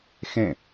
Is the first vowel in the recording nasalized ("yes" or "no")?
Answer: yes